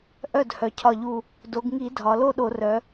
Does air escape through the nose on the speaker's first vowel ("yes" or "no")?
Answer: no